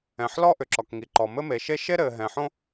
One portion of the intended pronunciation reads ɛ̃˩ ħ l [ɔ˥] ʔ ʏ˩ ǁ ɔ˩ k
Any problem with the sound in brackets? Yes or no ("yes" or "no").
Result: no